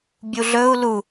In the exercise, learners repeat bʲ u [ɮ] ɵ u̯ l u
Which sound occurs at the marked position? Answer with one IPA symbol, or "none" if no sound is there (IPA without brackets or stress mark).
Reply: ɮ